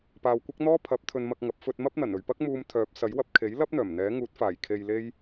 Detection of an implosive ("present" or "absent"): absent